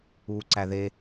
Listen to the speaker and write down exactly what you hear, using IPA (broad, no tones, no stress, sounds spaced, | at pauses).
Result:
uː ǀ æ ð e